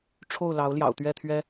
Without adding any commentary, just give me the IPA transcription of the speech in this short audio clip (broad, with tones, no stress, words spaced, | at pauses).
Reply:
ʈ͡ʂʰo˥˩ʊ̯lɑ˧˥ʊ̯ ljɑ̰˨˩ʊ̯t̪ɥɛ˥˩t̪ʰɥɛ˥